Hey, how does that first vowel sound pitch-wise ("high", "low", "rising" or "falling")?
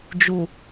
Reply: low